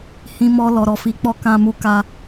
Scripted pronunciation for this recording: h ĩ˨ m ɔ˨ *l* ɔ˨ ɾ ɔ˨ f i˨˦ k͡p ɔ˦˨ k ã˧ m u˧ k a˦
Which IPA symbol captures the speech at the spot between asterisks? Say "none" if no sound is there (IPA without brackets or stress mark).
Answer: l